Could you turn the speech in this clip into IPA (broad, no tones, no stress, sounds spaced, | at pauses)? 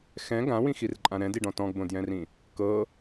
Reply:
x ɛ̃ ɡ ã w ĩ x i r ǃʼ ã ɾ ɛ̃ d i ɖ ɔ̃ t ɔ̃ ɡ b õ d j ɛ̃ r ĩ | k ɤ